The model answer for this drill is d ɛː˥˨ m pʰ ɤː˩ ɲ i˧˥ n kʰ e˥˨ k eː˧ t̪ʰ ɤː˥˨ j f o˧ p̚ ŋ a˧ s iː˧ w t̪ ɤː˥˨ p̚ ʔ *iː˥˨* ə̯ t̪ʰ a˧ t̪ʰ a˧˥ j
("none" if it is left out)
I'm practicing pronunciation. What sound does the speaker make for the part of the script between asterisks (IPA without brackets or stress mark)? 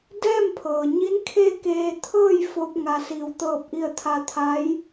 i˥˨